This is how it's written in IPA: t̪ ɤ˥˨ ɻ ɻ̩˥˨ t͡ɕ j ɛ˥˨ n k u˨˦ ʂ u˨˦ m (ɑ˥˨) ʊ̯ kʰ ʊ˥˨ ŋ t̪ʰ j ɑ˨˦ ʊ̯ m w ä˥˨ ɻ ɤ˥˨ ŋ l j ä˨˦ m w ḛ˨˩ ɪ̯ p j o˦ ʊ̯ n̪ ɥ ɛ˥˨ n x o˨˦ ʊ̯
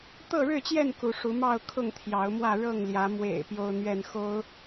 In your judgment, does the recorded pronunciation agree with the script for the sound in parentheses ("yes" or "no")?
yes